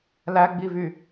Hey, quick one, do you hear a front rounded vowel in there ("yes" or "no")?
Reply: yes